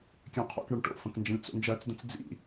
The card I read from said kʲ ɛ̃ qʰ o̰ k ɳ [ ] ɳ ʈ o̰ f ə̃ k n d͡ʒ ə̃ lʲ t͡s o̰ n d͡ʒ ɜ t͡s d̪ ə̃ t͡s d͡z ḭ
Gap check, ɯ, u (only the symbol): ɯ